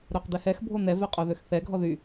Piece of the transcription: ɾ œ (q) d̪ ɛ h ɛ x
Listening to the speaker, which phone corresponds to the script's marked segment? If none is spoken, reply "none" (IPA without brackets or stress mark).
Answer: q